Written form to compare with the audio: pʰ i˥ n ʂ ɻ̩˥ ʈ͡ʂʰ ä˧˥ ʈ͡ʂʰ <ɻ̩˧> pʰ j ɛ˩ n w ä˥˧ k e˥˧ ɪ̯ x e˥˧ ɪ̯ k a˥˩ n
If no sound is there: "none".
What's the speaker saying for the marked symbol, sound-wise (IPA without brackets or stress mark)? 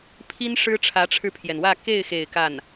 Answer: ɻ̩˧